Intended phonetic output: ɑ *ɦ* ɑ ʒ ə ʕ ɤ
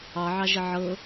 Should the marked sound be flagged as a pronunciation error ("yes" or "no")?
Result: yes